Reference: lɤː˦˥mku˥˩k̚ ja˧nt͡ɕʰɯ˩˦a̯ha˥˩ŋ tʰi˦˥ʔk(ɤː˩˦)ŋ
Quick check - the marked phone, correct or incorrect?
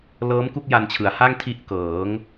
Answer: correct